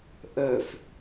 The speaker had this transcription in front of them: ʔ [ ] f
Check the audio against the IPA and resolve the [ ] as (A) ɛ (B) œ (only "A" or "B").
B